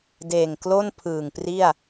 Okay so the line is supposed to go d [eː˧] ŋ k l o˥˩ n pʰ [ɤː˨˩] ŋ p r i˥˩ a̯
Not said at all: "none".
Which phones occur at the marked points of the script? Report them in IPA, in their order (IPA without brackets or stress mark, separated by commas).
eː˨˩, ɯː˨˩